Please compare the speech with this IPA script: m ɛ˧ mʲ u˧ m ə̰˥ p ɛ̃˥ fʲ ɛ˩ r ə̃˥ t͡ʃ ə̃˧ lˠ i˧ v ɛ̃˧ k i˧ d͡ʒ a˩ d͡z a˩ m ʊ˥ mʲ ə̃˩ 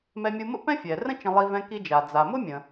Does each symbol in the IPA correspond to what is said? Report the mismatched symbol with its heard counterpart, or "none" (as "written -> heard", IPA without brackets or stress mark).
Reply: none